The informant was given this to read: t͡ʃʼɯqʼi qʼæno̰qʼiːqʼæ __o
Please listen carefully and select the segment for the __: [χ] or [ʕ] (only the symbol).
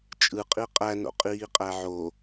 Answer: ʕ